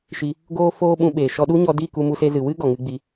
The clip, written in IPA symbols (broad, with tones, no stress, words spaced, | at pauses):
ʃi˧ | ɡoː˦ foː˦ɓũ˧ɓeː˨ ʃɔ˧ɗu˦ɲɔ˧di˦˨ ku˧mu˧se˧zɨ˨ wɨ˦ɡɔ˨ŋɨ˧ ɡ͡bi˧